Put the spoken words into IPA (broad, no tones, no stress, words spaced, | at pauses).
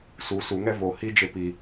su suŋɛ vo hid͡ʒe pi